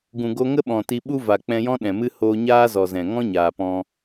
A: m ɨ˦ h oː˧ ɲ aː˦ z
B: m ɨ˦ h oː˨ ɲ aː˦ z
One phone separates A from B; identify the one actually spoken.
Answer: A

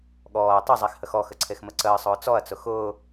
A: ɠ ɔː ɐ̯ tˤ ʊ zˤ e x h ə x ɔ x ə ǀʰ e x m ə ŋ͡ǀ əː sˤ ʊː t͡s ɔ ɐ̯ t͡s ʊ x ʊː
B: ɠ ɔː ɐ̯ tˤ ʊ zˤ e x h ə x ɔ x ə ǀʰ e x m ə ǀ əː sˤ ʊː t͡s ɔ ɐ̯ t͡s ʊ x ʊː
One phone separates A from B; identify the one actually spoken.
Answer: B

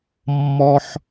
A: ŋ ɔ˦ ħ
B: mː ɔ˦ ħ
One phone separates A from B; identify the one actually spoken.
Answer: B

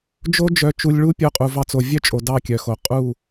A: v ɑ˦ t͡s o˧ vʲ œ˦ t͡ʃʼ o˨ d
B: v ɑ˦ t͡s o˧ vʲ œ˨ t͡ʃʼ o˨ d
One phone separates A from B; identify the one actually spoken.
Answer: A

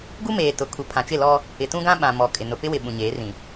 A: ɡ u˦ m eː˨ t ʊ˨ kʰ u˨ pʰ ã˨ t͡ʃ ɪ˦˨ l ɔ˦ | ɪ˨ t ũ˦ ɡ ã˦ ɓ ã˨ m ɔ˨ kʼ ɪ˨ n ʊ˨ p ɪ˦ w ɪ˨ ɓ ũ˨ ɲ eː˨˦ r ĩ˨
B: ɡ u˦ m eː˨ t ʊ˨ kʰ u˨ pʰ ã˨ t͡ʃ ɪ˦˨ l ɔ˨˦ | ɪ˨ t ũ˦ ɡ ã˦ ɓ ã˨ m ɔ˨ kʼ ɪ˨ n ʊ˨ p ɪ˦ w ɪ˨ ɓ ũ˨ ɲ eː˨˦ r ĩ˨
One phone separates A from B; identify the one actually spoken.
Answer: A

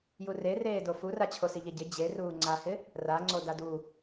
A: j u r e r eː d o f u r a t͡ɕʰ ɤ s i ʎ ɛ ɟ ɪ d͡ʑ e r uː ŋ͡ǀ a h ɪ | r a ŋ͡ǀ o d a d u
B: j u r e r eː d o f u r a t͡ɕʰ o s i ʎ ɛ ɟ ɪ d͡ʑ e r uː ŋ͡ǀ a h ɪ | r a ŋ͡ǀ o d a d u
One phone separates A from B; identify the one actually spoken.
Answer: B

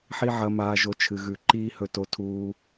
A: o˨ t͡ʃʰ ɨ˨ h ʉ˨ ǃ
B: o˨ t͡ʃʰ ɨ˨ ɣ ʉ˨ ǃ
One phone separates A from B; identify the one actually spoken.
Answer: B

